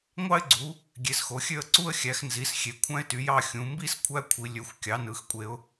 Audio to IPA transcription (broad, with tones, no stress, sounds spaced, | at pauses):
ŋʷ ɑ˥ ɪ̯ ɡ͡ǀ u˨˦ | ɡʲ e˨˦ s x o˨˦ xʲ ø˥˧ ə̯ ǀ u˥ ə̯ xʲ æ˨˦ x n z i˨˦ s xʲ e˨˦ kʷʰ æ̃˥ ɪ̯ t y˨˦ j ɑ˥˧ xʲ ũ˨˦ m b i˥ s kʷʰ æ˥ kʷʰ i˨˦ lʲ ø˨˦ xʷ kʲ ɑ˨˦ n ɯ˨˦ x kʷʼ e˨˦ ʊ̯